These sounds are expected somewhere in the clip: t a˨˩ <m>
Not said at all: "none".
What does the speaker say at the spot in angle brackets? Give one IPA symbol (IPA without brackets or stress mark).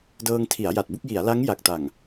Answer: ŋ